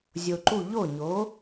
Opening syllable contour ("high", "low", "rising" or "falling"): low